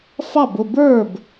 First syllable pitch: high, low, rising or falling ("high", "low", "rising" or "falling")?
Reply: falling